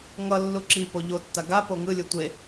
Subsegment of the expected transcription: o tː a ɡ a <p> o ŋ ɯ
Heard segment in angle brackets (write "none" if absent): p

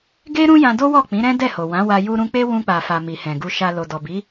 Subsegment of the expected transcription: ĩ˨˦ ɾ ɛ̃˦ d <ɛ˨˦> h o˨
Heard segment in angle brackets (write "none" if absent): ɛ˦˨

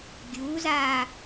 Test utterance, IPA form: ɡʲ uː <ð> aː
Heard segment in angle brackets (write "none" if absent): z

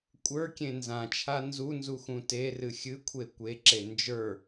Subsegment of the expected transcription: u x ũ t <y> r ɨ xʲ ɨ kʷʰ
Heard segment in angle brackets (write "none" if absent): e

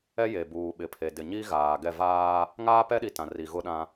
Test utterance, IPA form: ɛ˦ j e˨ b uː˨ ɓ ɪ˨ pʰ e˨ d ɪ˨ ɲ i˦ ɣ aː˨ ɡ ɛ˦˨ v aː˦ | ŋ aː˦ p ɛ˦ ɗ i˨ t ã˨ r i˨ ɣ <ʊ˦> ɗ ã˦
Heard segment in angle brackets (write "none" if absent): ʊ˦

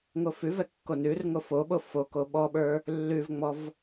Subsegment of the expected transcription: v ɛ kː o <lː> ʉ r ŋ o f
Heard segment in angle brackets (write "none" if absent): n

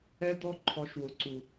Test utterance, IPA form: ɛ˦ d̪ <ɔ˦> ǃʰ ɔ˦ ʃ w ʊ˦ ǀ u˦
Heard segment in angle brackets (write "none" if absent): ɔ˦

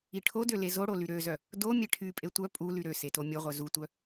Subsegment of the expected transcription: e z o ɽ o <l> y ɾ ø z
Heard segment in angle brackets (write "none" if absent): l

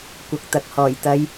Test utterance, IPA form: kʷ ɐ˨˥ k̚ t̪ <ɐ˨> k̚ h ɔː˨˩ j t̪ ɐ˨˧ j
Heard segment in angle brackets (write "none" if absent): ɐ˨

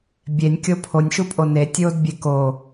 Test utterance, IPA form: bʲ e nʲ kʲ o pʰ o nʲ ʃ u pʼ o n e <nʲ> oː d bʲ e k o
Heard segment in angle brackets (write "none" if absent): tʲ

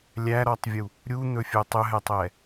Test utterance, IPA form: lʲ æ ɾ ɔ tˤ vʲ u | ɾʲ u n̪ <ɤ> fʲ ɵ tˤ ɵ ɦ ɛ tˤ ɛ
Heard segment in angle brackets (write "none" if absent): ɵ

